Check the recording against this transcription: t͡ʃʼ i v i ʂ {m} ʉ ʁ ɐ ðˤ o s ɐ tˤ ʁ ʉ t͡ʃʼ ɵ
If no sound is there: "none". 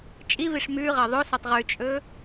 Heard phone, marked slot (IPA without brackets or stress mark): m